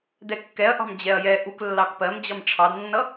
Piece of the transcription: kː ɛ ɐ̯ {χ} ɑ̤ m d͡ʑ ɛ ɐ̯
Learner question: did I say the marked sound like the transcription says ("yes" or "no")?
no